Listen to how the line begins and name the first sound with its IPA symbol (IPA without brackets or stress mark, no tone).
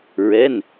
ɹ